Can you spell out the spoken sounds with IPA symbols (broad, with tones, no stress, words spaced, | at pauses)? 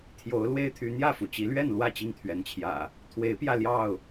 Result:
t̪ʰjo˨˦ʊ̯ lwe˦ɪ̯t̪ʰy˨˦n̪jä˥˨fu˩ t͡ɕi˨˦lɥɛ˥˨nlwä˥˨ t͡ɕi˥˨ŋt̪ʰɥɛ˨˦nt͡ɕʰjä̰˨˩ | t̪ʰwe˨˦ɪ̯pjä˧ ljɑ˥˨ʊ̯